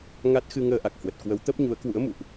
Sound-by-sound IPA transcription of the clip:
ŋ a˦˥ t̚ x ɨ˧ ŋ əː˧ ʔ a˨˩ k̚ h w ə˨˩ t̚ k w ə˨˦ w t̪ ə˦˥ p̚ ɲ u˨˦ ə̯ k w ṵ˧˥ ə̯ m ṵ˧˨ ʔ

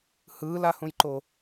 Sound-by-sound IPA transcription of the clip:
h ɯː l a h ũ j ǃ o

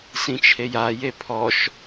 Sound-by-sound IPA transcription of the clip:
s ĩ t͡ʃʰ e j a j e pʰ ɔ ʃ

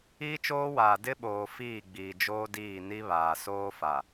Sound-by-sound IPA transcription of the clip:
iː˦ t͡ʃ oː˦ w aː˨ d ɪ˦ ɓ oː˨ f iː˦˨ ɡ͡b iː˨ d͡ʒ oː˦ d iː˦˨ n i˦ β aː˨ s oː˦ f a˨

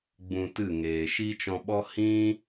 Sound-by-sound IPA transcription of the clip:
ɡ͡b ũ˧ t ɨ˦˨ ŋ eː˨ ʃ i˦ t͡ʃ ɔ̃˧ ɓ ɔ˦ h ĩ˦

